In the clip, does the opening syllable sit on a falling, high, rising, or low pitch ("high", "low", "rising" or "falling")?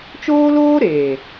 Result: high